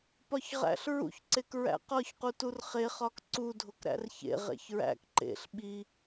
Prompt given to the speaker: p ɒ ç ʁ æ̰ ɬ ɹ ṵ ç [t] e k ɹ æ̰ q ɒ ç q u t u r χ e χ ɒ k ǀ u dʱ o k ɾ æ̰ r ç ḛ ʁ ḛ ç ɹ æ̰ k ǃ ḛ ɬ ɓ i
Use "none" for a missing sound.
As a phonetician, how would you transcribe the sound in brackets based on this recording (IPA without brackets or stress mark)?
ǀ